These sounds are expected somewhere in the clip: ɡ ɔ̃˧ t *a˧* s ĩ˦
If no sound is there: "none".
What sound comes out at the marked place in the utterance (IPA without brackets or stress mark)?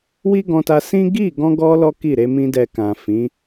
a˧